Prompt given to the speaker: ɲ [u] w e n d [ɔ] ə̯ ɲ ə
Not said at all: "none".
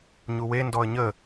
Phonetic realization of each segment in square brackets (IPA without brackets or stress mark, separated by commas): u, ɔ